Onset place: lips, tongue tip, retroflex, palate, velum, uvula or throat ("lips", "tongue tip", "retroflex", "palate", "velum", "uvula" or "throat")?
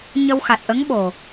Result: palate